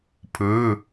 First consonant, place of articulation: labial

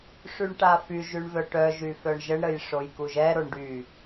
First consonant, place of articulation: retroflex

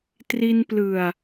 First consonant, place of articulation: alveolar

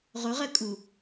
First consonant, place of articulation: uvular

